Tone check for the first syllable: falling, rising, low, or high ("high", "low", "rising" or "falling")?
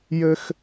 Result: high